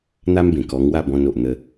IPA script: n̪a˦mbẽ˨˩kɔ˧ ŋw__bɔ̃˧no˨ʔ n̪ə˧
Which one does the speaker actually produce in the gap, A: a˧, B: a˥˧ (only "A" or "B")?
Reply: B